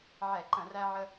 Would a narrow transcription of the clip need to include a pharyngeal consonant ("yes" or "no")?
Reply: yes